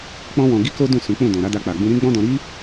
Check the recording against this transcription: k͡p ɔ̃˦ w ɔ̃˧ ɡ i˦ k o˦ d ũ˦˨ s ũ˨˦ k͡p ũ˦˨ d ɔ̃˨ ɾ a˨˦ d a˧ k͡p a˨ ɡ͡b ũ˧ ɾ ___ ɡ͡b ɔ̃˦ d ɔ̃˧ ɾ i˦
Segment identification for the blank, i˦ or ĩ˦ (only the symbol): ĩ˦